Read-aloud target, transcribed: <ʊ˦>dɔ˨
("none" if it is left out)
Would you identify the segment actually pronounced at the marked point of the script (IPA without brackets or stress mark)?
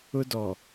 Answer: ʊ˦